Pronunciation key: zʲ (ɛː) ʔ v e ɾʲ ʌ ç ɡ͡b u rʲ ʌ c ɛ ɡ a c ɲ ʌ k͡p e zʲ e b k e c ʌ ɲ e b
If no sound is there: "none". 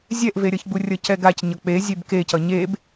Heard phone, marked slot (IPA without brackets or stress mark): ɛ